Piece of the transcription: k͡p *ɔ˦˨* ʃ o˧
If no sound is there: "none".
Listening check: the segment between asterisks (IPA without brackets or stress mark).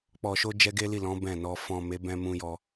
ɔ˨